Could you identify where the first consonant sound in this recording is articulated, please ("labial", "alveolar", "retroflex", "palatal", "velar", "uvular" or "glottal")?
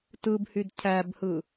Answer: alveolar